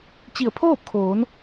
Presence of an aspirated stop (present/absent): present